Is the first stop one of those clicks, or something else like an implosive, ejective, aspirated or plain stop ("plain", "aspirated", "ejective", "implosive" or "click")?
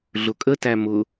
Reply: ejective